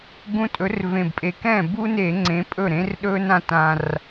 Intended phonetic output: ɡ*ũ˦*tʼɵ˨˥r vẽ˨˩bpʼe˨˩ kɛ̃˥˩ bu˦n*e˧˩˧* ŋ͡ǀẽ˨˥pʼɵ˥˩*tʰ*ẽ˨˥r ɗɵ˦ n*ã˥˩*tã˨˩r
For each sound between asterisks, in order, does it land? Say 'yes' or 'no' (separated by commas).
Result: yes, yes, no, yes